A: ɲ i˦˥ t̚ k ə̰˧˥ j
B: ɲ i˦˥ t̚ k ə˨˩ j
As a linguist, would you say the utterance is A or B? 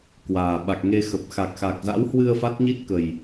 B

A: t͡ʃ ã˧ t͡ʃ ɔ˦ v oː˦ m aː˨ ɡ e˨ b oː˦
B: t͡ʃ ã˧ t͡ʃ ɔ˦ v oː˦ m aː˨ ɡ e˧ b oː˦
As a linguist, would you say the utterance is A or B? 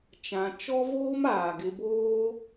B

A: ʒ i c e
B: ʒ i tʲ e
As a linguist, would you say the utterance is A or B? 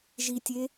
B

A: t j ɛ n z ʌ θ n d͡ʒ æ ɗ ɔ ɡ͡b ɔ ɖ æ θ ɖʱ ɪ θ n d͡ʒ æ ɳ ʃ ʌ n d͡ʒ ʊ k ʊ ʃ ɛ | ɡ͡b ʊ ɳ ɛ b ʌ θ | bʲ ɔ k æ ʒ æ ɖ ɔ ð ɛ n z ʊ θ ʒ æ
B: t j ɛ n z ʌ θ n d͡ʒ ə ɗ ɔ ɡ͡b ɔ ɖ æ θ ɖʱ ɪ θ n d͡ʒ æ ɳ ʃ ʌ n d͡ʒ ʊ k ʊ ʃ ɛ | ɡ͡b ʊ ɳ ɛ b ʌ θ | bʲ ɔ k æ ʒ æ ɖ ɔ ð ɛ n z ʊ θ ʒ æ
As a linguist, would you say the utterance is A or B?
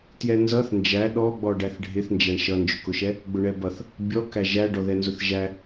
A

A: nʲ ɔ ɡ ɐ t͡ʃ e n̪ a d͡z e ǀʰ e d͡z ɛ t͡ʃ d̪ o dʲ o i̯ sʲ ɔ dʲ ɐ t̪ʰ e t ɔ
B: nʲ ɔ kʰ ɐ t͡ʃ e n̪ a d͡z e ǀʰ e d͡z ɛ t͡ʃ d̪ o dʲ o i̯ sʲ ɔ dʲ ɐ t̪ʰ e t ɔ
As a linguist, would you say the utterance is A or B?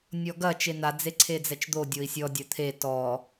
A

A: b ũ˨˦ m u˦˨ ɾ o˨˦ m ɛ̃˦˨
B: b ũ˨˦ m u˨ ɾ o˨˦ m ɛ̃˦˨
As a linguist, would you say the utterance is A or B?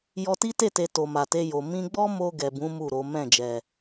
A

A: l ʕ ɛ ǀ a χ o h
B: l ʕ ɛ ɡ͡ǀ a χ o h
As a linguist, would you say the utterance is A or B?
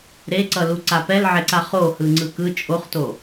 A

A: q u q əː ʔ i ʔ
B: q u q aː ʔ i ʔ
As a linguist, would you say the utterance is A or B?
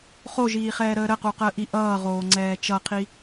A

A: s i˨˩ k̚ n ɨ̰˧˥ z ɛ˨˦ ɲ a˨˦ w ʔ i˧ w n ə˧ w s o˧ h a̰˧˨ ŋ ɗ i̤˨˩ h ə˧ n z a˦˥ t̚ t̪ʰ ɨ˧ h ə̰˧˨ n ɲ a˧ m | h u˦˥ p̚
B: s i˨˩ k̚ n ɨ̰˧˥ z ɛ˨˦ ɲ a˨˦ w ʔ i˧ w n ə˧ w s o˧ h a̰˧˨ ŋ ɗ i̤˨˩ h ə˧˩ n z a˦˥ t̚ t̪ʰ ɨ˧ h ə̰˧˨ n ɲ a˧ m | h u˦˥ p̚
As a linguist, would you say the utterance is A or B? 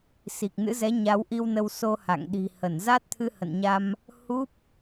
B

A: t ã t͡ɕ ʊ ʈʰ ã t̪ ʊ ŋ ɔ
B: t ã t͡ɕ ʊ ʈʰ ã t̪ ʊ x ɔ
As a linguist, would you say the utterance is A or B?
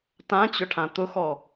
B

